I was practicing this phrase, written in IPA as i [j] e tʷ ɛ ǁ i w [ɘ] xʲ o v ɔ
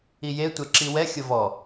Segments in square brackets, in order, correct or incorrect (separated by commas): correct, incorrect